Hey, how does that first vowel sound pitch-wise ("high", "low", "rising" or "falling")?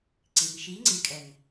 low